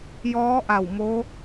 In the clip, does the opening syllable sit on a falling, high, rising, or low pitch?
rising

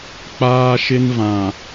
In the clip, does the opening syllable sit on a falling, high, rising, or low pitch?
high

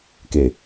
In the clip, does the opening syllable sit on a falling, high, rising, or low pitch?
low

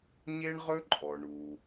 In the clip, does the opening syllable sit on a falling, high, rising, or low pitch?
high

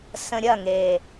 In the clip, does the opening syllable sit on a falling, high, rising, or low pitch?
low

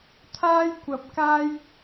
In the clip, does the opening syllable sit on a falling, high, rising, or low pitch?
high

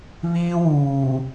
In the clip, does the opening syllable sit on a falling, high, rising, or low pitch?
high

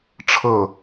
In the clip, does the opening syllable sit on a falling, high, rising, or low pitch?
falling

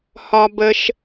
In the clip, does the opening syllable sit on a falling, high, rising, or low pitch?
low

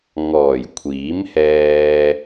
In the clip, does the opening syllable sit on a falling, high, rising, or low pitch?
low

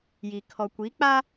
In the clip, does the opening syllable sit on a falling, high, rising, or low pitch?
low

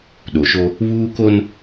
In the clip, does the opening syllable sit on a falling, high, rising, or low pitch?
low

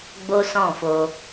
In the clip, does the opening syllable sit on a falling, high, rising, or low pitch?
high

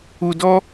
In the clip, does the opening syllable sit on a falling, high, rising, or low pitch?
high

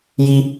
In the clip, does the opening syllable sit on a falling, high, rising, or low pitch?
high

